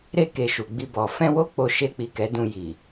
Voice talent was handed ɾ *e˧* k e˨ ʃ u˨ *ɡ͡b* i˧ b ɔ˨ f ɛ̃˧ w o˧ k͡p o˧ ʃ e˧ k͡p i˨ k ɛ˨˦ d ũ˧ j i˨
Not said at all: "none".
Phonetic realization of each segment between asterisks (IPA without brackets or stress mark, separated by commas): e˧, ɡ͡b